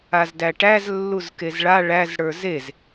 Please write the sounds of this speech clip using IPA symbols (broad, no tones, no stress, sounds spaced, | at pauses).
a z d æ ʈ æ z lː u z k e z ɭ a ɭ æ z ɽ ə˞ z e z